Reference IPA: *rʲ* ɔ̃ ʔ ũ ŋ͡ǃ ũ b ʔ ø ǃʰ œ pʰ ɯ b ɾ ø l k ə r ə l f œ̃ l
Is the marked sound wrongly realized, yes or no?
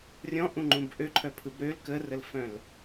no